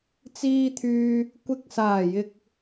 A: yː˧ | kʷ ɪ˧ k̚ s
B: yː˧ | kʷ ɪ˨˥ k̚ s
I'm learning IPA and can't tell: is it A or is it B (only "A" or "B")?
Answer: B